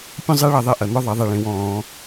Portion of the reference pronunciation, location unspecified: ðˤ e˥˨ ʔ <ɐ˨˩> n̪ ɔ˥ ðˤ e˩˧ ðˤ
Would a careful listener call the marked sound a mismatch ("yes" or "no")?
no